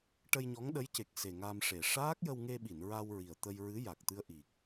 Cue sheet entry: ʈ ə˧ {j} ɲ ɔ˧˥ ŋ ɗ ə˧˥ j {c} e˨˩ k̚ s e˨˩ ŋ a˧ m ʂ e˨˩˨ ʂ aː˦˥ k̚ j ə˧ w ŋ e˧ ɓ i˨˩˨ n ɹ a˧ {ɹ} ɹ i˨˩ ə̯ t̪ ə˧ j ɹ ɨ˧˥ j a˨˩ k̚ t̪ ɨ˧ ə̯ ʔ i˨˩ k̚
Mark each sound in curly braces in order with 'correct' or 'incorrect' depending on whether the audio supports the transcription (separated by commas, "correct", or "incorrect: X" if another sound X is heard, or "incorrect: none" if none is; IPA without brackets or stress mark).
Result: correct, correct, incorrect: w